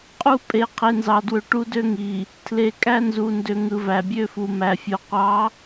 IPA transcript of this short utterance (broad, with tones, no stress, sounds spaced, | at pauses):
qʼ u˦ pʼ e˨ qʰ e˨ n z ɑ˨ d w ø˨ ʈ u˦ d ø˦ ŋ i˨ | tʰ l e˨ kʼ æ˦ n z u˨ n d ø˨ ŋ ɯ˨ v æ˨ bʲ ø˦ f u˨ m æ˨ fʲ o˨ qʷ ɑ˨˦